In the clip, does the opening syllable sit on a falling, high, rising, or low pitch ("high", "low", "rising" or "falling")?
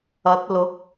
rising